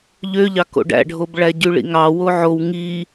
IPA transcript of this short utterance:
ʎ ø ʎ ɑ k o̰ ɖ æ̰ ɖʱ o b ɭ æ ɟ y ɭ ḭ ŋ ɑ w o ʕ o w ŋ i

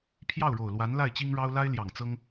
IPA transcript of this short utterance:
pʰ j ɑ˥˩ ʊ̯ ɻ o˨˩ ʊ̯ l w a˧˥ n l a˥˩ ɪ̯ t͡ɕ i˥ ŋ ɻ ɑ˥ ʊ̯ l a˥ ɪ̯ l j ɑ˨˩ ŋ t͡s ɤ˥ ŋ

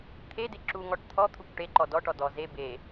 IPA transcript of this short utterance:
t̪ʰ e d e ǁ u ŋ ɔ ʈ t̪ʰ ɔ t̪ʰ u kʷ ʈ e ǃ ɔ d ɔ ʈ ɔ d ɔ z e b e

